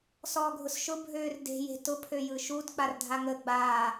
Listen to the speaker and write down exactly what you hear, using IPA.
s ɔː ɡʱ ʊ s ʃ ʊ bʱ øː r d e̤ j e̤ t ʊ pʰ ø j ɯ ʃ u d k͡p a r dʱ a ŋ ə ɡ͡b aː

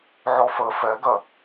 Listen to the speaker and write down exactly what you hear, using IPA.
ʕ ɔ f ə f ɛ ɡ ɜ

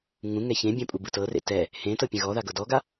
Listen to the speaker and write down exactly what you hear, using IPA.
ŋ ũ ŋ ɛ ç ẽ bʲ ɛ̃ pʼ u b ɯ t ɤ r ḛ t ɛ | h ẽ t ɤ pʲ ẽ ɣ ɔ ð a ɡ ɤ d ɔ ɡ a

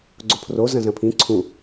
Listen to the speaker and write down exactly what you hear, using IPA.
ɡ͡ǀ o pʰ r o z ɐ̃ z ɐ̃ pʰ ĩ ǀʰ ũ

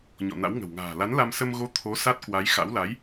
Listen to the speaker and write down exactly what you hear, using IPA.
ɲ ɔ̰˧˨ n a̰˧˥ w ŋ ə̤˨˩ w ŋ a̤ː˨˩ l a˨˦ n l a˧ m s ə˧ m ɣ o˨˦ t̪ʰ o˨˦ s a˦˥ t̚ k w a˨˦ j x a̰˧˥ w l a˨˦ j

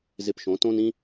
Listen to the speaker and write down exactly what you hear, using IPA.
z ɪ˧ p ʃ õ˩˥ t õ˥ n ĩ˥

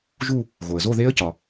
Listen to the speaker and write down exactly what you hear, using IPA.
ʒ u˥˧ | ɣ o˩ ə̯ z o˥˧ ð e˦˥ ə̯ c ɒ˩

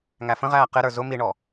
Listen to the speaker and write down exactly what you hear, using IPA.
ŋ æ f ə̃ ʁ æː q ɪ ɾ ə˞ z ʊ m i ɳ ɔ

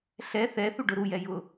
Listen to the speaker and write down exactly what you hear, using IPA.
ɬ ɛ θ ɛ θ u ɖ ʊ ɾ u j ɛ j ʊ

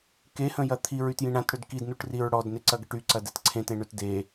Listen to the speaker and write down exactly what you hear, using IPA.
k e h ə̃ j ɐ t̪ʰ i ɹ y t j ĩ ɳ ã t ɽ ø d k i d n u ʈ r i ɹ ɽ ɔ d n e ǀ ɐ ɡ ə ʈ y ǀ ɐ d ɛ t ǀʰ ẽ t ẽ ɳ ø t d e

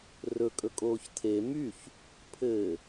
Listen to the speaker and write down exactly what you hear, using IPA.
r ɵ kʼ ɵ kʼ oː ç tʰ e m y ç | pʰ ɘː

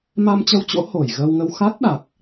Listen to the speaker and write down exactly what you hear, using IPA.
m a˧ m t͡ɕ ə˧ w t͡ɕ o̰˧˥ h o˧˩ j ɣ əː˧ w ŋ ə˧ w x a˦˥ t̚ ɗ a˨˩ k̚

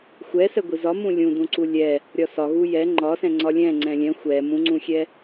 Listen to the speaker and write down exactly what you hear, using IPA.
xʷ ɛ s ɛ ɡʷ i z ɒ m ũ lʲ ũ d ũ ǀ u lʲ ɛ | ɾʲ ɒ s ɒ ɣ u j ɛ ŋ͡ǃ ɒ s ɛ̃ ŋ͡ǀ ɒ lʲ ɛ̃ ŋ͡ǀ ɛ̃ lʲ ɛ̃ xʷ ɛ m ũ ŋ͡ǀ ũ xʲ ɛ

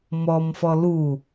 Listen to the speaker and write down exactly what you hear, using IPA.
m ɔ m f ɔ l u

